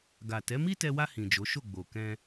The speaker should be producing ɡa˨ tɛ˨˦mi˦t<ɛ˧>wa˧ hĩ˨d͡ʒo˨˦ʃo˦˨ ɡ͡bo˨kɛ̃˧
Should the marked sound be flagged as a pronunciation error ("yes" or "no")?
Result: no